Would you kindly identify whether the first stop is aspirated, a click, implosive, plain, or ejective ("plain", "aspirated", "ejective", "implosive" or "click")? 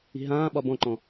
implosive